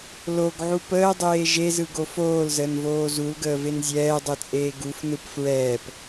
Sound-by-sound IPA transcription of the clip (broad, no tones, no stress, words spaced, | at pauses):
loɡʕu pəːdˤeː ʒezɯɡo foːlzəːnvoː zulɡəːven zʲɛːdˤɯt͡sʼeː ɡufnɯp fɹɛːp